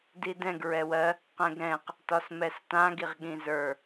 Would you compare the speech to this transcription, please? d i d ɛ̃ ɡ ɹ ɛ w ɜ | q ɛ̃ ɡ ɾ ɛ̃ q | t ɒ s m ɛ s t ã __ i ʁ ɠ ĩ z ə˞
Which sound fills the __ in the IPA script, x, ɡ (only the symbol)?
ɡ